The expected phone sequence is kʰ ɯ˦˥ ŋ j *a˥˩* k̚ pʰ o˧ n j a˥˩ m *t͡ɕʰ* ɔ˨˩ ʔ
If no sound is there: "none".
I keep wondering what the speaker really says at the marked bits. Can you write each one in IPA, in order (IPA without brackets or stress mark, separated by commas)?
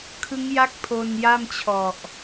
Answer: a˥˩, t͡ɕʰ